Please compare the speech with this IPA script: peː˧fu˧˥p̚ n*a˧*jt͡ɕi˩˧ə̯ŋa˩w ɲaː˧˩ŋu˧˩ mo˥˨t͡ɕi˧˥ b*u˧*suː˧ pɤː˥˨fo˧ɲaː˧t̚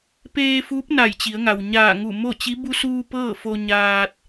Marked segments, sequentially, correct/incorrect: incorrect: a˧˩, correct

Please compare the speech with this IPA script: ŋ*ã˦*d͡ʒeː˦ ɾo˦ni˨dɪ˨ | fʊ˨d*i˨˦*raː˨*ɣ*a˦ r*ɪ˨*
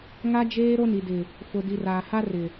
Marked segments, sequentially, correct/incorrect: incorrect: a˦, incorrect: i˨, incorrect: h, correct

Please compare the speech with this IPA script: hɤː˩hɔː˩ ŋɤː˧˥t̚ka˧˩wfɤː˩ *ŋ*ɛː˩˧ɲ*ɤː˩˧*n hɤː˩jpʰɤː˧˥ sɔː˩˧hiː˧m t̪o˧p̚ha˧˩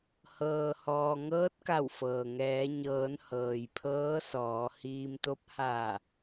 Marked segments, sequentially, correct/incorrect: correct, correct

